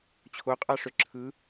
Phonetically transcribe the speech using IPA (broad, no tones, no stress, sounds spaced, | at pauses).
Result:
t͡ɕʰ o qʼ ɑ ʂ ø ǁʰ ɯ